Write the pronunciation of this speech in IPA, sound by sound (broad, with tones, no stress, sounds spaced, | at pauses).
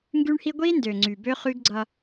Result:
ŋ ɡ y˦ ɳ h i˦ ɡʷ i˦ n d ø˨ ŋ͡ǀ y˨ b ø˦ χ y˦ ɡ ɡ͡ǀ ʌ˦